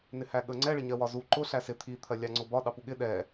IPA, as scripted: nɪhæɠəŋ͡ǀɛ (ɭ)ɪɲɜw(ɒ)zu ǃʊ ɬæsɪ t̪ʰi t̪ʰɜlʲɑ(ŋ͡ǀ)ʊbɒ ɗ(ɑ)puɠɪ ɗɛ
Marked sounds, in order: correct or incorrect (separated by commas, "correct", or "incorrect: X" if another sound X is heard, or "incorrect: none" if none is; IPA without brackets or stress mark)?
correct, correct, correct, correct